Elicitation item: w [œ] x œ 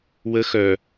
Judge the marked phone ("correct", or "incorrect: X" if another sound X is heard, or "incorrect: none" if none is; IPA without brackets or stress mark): incorrect: ə